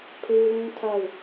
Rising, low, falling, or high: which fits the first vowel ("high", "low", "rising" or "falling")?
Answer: high